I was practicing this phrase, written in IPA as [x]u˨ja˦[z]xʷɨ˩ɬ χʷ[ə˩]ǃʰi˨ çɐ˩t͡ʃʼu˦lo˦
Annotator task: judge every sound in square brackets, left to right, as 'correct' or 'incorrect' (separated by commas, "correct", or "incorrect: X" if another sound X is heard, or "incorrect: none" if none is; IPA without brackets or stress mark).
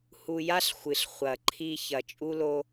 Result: incorrect: h, incorrect: ɬ, incorrect: ɐ˩